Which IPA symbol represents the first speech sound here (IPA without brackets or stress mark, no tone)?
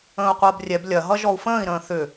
ə̃ː